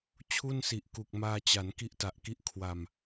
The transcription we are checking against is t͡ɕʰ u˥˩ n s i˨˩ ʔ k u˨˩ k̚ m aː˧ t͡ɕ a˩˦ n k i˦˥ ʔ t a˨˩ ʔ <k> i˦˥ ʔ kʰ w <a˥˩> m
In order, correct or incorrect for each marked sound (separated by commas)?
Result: correct, incorrect